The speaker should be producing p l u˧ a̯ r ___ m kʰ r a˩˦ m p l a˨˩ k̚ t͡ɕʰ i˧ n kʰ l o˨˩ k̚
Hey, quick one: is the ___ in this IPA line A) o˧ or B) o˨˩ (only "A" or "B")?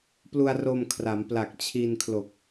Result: A